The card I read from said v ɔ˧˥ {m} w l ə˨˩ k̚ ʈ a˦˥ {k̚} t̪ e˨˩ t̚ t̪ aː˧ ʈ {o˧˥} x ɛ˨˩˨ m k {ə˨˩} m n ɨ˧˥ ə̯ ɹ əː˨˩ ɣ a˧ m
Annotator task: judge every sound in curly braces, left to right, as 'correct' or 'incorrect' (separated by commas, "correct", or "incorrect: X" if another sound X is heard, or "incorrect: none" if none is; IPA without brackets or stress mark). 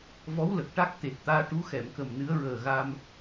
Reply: incorrect: none, correct, incorrect: u˧˥, correct